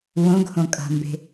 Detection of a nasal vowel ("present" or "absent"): present